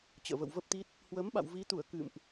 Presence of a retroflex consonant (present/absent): absent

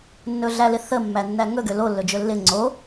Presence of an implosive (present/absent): absent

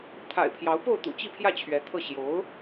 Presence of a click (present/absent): absent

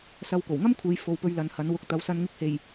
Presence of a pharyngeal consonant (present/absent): absent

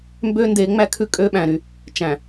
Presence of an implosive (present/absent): present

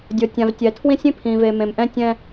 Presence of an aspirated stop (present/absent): present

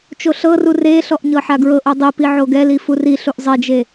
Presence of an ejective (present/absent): absent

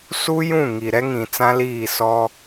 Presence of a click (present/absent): absent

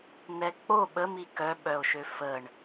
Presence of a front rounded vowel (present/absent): present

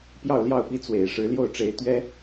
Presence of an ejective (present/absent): absent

